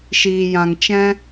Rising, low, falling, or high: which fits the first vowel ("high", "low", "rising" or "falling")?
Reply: low